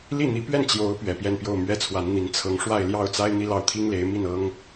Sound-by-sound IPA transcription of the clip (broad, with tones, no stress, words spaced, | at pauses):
li˥˩n̪i˧˥pɥɛ˥˩n t͡ɕjo˧˥ʊ̯ pɥɛ˨˩pjɛ˥˧npjo˥˩ʊ̯mɥɛ˥ t͡sʰwa˧˥nn̪i˧˥n t͡sʰɤ˧˥ŋʂwa˥˧ɪ̯ljɑ˥˩ʊ̯t͡sa˥ɪ̯ n̪i˥lɑ˥˩ʊ̯t̪ʰi˥ŋle˧˥ɪ̯ mi˥˩nɤ˥ŋ